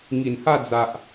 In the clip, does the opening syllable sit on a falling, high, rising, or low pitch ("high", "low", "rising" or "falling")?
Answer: low